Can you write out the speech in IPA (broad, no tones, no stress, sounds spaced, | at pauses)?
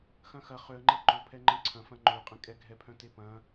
x ɐ̃ x ɐ χ ø ə̯ ŋ͡ǃ ɛ ǃ ʊ pʰ ɛ ŋ͡ǃ ɛ̃ ǀʰ ɐ̃ f ɐ̃ ŋ͡ǃ ø qʼ ɛ̃ kʼ ɛ ɡʱ ɛ pʰ œ̃ t e p ɐ̃